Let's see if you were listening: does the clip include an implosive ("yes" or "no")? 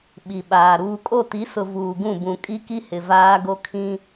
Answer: yes